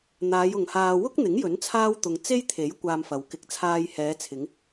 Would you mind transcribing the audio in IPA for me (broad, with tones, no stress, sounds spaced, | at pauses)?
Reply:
n̪ aː˨˧ j ʊ˨ ŋ h aː˧ w ʊ˥ k̚ n̪ ɪ˨˥ ŋ j ɵ˨˥ n t͡sʰ aː˥ w t̪ ʊ˧ ŋ t͡s e˥ j t̪ʰ e˨˥ j kʷ aː˧ m f ɐ˨ w k ɪ˧ k̚ t͡sʰ aː˧ j h ɛː˨˧ t͡sʰ ɪ˨˧ ŋ